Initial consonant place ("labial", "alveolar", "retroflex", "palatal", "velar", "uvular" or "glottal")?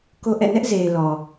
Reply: velar